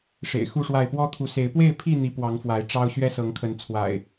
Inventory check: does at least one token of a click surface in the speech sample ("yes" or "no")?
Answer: no